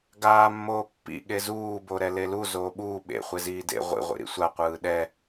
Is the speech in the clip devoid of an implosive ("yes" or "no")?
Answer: no